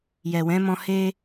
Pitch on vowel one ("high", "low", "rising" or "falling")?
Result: low